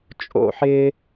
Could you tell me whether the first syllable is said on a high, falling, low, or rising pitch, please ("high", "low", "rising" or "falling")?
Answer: falling